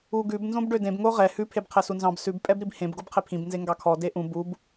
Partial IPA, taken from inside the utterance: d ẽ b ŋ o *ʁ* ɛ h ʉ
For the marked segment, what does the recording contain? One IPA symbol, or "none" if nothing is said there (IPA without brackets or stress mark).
ʁ